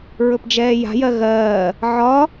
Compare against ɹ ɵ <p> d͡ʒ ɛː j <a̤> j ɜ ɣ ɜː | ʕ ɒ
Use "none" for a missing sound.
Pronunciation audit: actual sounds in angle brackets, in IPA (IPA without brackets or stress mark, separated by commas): p, a̤